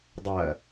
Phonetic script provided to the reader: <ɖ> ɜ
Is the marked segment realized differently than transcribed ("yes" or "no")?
yes